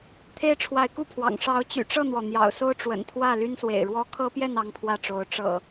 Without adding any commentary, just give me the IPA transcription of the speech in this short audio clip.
t̪ʰ e˦ ɪ̯ ʈ͡ʂʰ w a˨˦ ɪ̯ k u˥˨ pʰ w ɑ̰˨˩ ŋ ʂ ɑ˨˦ ʊ̯ t͡ɕ y̰˨˩ ʈ͡ʂ ɤ˥˨ n̪ w ɔ˩ n̪ j ɑ̰˨˩ ʊ̯ s o˦ ʊ̯ ʈ͡ʂ w ə̰˨˩ n t̪ʰ w ä˥˨ l y˦ n s w ḛ˨˩ ɪ̯ ɻ w ɔ˦ kʰ ɤ˦ p j ɛ˥˨ n ɑ˦ ŋ pʰ w ä˥˨ ʈ͡ʂ o˨˦ ʊ̯ ʈ͡ʂ ɤ̰˨˩

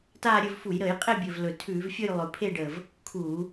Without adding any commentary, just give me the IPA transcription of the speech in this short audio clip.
t aː˦˨ ɾʲ ɵ˦˨ v f u˧˩˧ j ɾ əː˧˩˧ j qʼ e˦˨ bʲ ɵ˨˩ v l ɵ˨˩ tʰ ʉː˧˩˧ v fʲ ɵ˦˨ j lˠ ɵ˨˩ pʰ e˦˨ ɖ əː˨˩ v | kʰ uː˧˩˧

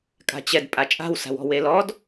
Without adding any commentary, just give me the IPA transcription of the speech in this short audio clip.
kʼ a̤ t͡ɕ ɛ d pʼ a t͡ʃʼ a̤ w s a̤ w ɔ̤ w e l ɔ d

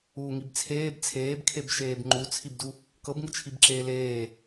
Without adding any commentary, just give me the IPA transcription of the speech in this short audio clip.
uː ŋ i b t͡sʰ eː b t͡sʰ eː b kʰ e b ʃ eː b ŋ͡ǃ u t͡sʰ i b d u | k ɤ b ŋ ɯ t͡ʃʰ i b ǁ eː l eː

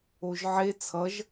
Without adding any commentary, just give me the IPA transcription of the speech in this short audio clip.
o ʒ ʕ e t͡sʰ ʌ ʒ

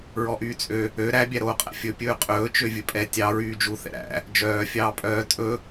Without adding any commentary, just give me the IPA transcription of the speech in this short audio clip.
ɹ ɔ ʔ yː t͡sʼ ø | ø ɾ æ bʲ æ ɾ oː qʼ æ̰ fʲ ɵ pʲ ɵː qʼ ɵː t͡ʃ ø vʲ ɵ pʼ ɛ tʲ ɑ ɹ yː d͡ʒ u θ ɛ̰ ɾ æ̰ | d͡ʒ œː fʲ ɑː pʼ œː tʼ ɵ

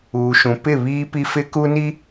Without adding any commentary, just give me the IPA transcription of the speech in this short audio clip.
uː˨ ʃ ũ˨ p ɪ˦˨ β iː˦ p i˦ f ɪ˦ k u˦ n i˦

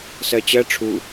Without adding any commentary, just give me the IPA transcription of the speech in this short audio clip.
s ɜ t͡ɕ ɜ ʈ͡ʂʰ u

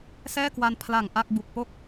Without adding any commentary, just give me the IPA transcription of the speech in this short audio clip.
s ɛː˥˩ k w a˧ n pʰ l a˨˩ ŋ ʔ a˥˩ k̚ b u˨˩ k̚ p o˦˥ k̚

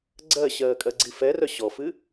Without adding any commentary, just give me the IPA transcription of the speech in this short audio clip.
ɡ͡ǀ ɜ ɕ ɜː kʼ ɜ ɡ͡ǀ i f ɛ r œ ɕ ɔ f ɨ

